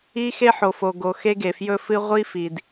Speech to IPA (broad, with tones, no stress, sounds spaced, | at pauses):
i˧ x e˧ ħ o˩ f o˩ ɡ o˩ x e˧ ɡ e˩ f j ɵ˧ f ɨ˧ ʁʷ i˧ f i˩ d